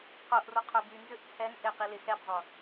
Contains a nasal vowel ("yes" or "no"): no